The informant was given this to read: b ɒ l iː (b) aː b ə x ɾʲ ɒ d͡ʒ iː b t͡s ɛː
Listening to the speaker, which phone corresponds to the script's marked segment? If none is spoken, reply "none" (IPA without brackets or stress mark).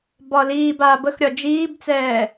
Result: b